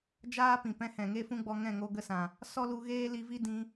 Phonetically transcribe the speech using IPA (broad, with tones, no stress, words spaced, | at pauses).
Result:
d͡ʒaː˦pĩ˨pɛ̃˧ hɛ̃˨ŋe˦fũ˦ɡ͡bɔ˧ ŋɛ̃˦˨ŋo˧ɡə˧sã˨ | sɔ˦lu˧ɣeː˦ li˧vi˦dĩ˧